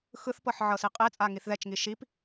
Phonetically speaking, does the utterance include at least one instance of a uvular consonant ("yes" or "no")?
yes